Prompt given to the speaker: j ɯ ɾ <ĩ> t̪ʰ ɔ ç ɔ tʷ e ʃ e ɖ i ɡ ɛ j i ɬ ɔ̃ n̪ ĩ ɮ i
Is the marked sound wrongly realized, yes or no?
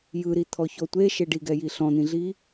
yes